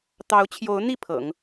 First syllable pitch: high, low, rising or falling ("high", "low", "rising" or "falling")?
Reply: rising